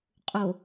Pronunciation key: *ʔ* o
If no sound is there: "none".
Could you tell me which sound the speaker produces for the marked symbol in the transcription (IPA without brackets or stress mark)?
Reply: qʼ